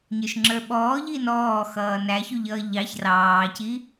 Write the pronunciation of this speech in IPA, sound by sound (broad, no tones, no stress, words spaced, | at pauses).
ɲə˞ʃŋ͡ǁə˞ɓɔː ʎinɔː xʌːnæçuʎʌː ʎɑç rɑːci